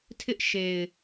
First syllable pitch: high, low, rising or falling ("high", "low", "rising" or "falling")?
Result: high